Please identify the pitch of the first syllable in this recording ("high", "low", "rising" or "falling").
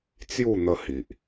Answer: falling